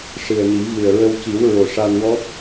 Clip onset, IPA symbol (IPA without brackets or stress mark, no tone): ʂ